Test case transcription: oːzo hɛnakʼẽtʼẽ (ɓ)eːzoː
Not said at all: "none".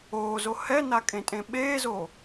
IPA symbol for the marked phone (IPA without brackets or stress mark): ɓ